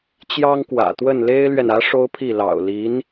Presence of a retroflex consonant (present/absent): present